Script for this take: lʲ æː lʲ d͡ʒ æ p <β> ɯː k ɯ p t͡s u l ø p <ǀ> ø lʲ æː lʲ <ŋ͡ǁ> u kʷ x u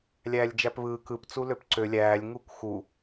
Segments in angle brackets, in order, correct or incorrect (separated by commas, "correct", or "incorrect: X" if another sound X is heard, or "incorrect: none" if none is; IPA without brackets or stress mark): correct, correct, incorrect: ŋ